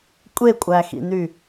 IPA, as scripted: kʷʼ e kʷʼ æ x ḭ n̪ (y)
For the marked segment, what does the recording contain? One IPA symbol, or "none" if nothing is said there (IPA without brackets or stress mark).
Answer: y